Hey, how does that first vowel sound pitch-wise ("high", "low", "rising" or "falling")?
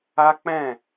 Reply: high